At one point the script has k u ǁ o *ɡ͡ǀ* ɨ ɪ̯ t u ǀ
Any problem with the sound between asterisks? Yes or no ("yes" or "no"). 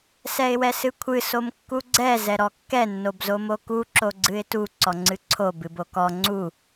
no